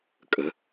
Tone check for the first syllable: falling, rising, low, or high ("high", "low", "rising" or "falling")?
rising